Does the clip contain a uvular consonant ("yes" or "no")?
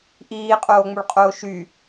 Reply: yes